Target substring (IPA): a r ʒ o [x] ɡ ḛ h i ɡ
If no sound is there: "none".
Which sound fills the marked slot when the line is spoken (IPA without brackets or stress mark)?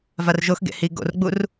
x